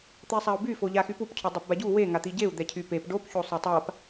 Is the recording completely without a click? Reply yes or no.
yes